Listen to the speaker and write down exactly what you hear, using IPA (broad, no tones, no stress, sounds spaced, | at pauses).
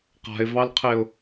q a̤ ɪ̯ v ɑ l qʰ e ʊ̯